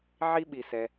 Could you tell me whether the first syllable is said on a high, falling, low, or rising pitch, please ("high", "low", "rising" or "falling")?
high